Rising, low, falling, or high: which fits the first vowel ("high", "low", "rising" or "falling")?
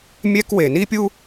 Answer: high